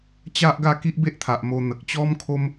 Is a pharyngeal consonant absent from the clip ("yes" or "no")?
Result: yes